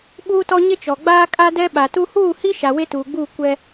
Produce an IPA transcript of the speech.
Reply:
ɓuː˦tɔ˦ ɲɪ˦t͡ʃɔ˨ ɡ͡baː˦kʼa˦dɛ˦ ɓa˨tu˦ huː˦˨hi˦ ʃa˨we˦tuː˨ɡ͡buː˦˨ kʷɛ˦

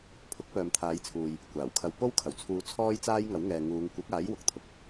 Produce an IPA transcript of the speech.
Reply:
pʰʊ˨˥k̚ pœː˨mt̪ʰaː˨˧jt͡sʰuː˨j | kʷaː˨˩w kʰɐ˨wpo˥wkʰɐ˨˩wt͡sʰuː˨˧ t͡sʰɔː˥jt͡saː˥jŋɐ˨˥w ŋɛː˨ŋuː˨˧ŋ kʷɪ˨˥k̚aː˨˥j wʊ˨k̚t̪ʰʊ˨k̚

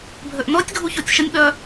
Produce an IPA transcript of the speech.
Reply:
bʱøʔnɔtʲ ɡʱuçotʲʃənʲ ɓœ

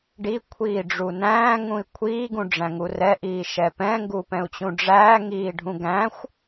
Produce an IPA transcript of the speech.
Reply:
ɖikʷʰiːɖ͡ʐu næ̃ːŋũi̯ kʷʰiːɡũɖ͡ʐæ̃ŋu rɛʔiːʃɛ pɛ̃ŋɡupɛ̃u̯t͡ɕũ ɖ͡ʐæːŋiːɖʱũ ɡæ̃xʷ

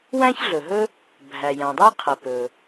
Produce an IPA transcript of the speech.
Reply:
wæ̃˥çɮɵ˩ɦɵ˥ | bʱæ˩jæ̃˩dˤɛ˥qʰɛ˩ pɵ˩

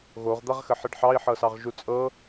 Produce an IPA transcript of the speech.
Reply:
ɣoʁ d̪aʁxəħəɖħɑi̯ ħɤsɑʁʒut͡sʼɤ

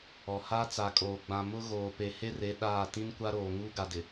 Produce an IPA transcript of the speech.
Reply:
ɔ˨ ha˦t͡sa˨kʼoː˨ ɡ͡bã˨ mʊ˦ ɣoː˨pe˨ he˦re˨˦ ɗaː˦˨ tĩ˦nkʷa˦ɾoː˨ ŋuː˦ɡa˨dɪ˨

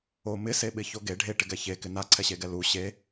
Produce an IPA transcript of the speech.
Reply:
o mɪseɓɪ çoɡe ɖʱeʈɪɡɛ çekɪ naǀʰɛɕeɡɛ lu ɕe

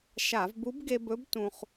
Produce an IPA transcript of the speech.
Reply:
ʃa˧˩˧vbu˧˥b ɡe˧bɵ˧˥b tũ˧χ

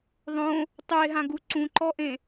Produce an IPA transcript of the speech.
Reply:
ðˤõ | tˤue̯ɦãɡu ǀũǃɔʔẽ

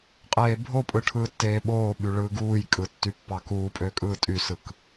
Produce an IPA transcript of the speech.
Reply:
qʼeːbʱopʼɯ ʈʰɯːtːeːɓoːɓy ɭɯːɡuːjkʼɯ tːypːɑkuːpʼø kʼɯːtʼysɯk

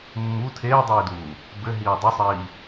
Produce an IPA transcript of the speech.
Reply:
mːu tʰeːdˤiːduː | bɘɦiː dˤusˤiː

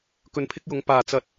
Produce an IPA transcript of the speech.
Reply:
kɵ˧npʰɪ˥k̚jʊ˨˥ŋ paː˨t͡sɐ˧t̚

